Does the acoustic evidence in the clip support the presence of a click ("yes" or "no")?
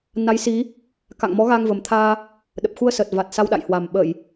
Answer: no